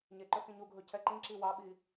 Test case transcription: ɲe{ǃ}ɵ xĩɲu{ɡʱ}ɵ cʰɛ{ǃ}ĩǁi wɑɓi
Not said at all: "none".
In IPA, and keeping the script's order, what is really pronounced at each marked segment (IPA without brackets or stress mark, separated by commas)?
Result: ǃ, ɡʱ, ǃ